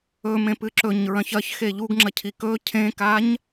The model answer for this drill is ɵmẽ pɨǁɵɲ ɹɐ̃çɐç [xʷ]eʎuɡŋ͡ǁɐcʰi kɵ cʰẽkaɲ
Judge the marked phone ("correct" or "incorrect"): incorrect